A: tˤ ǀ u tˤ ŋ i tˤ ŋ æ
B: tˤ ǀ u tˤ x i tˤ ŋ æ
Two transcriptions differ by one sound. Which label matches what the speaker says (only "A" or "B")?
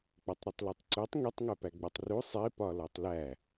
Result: A